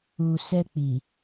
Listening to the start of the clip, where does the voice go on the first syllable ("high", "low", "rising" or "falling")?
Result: low